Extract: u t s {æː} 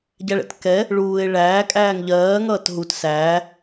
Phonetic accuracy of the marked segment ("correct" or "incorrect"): correct